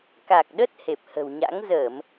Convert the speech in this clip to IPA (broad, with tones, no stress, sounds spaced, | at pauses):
k a˨˩ k̚ ɗ ə˦˥ t̚ h e˨˩ p̚ h ə̤˨˩ w ɲ a̰˧˥ ŋ z əː˧˩˨ m